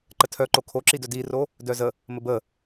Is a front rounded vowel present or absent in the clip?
present